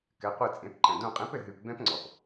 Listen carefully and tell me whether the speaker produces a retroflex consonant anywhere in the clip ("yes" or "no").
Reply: no